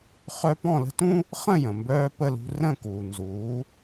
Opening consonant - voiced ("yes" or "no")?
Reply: no